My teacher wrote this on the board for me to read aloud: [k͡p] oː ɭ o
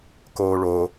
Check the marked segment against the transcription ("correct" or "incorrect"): incorrect